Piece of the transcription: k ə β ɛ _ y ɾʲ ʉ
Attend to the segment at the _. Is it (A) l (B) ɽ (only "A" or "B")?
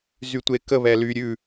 A